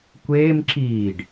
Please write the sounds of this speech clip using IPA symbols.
kʷ eː m ǁ iː ɖ

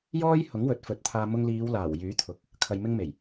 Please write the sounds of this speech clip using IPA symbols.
j ɔː˥ j h ʊ˨˥ ŋ w ɵ˨˥ t̚ f ɵ˨˥ t̚ t̪ʰ aː˧ m ʊ˧ ŋ l iː˨˧ w l aː˨˩ w j yː˨˥ t̪ʰ ʊ˨˥ k̚ | kʰ ɐ˨ j m ɪ˧ ŋ m e˨˩ j

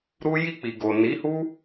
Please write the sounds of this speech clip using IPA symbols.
ɾ u˦ j i˧ k͡p i˨ ɡ o˨ n i˨˦ h u˦

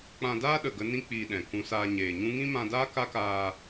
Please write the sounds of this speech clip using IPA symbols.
k͡p ã˧ d aː˦ ɗ ə˨ ɡ ə˦ n ĩ˦ k͡p iː˧ ɗ ɛ̃˨ k ũ˧ s aː˧ ɲ eː˨ ɲ ũ˦ ŋ ĩ˦ m ã˧ d aː˦ k a˦ k aː˧

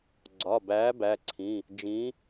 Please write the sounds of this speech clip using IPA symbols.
ɡ͡ǀ ɒ˩˧˩ b æː˨˥ b æ˩˧˩ ǀʰ ĩ˩˧˩ | d͡ʒ ĩ˨˥

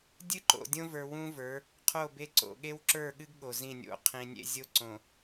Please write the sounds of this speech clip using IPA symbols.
dʲ ɨ˦ ǃ o̰˨ dʲ õ˦ v ə˞˨ w ũ˦ v ə˞˨˦ | qʰ o˦˨ b e˦ ǀ o̰˨ ɠ e˦ w ǁ ə˞˦˨ ɠ ɨ˦ ɡ ɠ o˨ z ĩ˦˨ nʲ o̰˦ qʰ ĩ˨ nʲ ḛ˦ zʲ o˦ ǀ õ˨

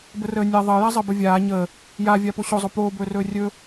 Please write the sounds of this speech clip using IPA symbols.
b ə r əː nʲ a ðˤ əː j a zˤ əː b ə vʲ aː ɲ əː | j a vʲ a p o ɕ o zˤ o p oː b ɵː r ɵː rʲ ɵ

